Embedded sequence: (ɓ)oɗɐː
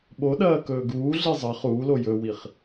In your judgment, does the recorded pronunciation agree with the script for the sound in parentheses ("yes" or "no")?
yes